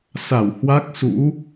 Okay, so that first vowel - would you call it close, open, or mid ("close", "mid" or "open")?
open